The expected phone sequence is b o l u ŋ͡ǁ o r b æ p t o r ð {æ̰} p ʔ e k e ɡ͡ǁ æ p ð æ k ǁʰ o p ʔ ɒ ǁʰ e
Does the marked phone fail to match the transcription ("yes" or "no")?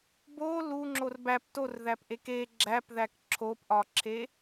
yes